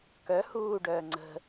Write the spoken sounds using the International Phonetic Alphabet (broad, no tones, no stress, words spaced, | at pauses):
kœ huːɖœː ŋ͡ǀə̤